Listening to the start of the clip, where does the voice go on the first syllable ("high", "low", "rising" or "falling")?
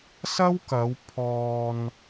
high